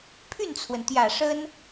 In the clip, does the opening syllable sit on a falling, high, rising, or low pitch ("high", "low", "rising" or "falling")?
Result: falling